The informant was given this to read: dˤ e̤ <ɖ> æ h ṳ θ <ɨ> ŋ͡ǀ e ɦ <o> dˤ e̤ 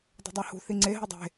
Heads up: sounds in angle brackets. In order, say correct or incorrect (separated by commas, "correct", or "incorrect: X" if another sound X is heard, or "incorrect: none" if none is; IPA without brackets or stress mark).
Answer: incorrect: dˤ, incorrect: i, correct